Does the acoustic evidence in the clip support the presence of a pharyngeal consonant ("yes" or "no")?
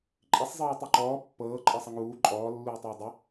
no